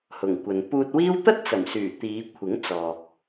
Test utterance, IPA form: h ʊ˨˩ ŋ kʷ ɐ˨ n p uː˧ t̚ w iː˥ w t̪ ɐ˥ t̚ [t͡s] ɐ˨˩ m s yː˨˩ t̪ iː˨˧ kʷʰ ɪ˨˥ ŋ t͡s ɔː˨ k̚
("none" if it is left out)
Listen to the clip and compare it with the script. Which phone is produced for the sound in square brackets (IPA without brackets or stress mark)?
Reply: t͡s